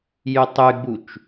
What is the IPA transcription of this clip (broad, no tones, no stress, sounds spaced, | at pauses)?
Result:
j y tˤ y ɡ͡b u t͡ʃ